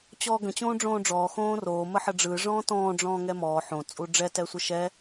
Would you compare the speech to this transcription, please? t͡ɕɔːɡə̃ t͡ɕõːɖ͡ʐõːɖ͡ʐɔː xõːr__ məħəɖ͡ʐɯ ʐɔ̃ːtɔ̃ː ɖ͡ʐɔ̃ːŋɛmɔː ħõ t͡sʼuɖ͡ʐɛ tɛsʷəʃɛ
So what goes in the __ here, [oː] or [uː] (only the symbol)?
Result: oː